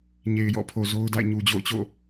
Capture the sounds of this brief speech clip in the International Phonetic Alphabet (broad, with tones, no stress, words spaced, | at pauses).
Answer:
ɲe˨ɪ̯jɔ̰˦˨ pʰo˨zo˦ʊ̯da̰˦˨ɪ̯ ɲu˨d͡ʑo̰˦˨ʊ̯t͡ɕo̰˦˨